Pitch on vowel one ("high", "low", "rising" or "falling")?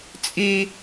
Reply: high